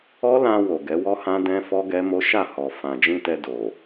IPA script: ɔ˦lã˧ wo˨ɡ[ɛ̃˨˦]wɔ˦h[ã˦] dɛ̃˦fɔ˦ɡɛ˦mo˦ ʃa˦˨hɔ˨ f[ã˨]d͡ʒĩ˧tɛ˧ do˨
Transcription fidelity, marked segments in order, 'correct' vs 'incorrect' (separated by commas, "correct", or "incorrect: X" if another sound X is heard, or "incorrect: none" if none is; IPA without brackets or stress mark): incorrect: ɛ˨˦, correct, correct